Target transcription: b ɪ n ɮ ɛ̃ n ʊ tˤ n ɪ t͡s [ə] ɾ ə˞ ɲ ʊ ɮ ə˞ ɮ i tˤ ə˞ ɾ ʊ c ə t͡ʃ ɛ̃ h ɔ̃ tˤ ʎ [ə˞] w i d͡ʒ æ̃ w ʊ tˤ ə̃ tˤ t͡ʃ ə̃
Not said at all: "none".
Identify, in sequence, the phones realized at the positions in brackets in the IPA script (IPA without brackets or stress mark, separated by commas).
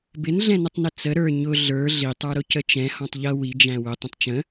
ə, ʌ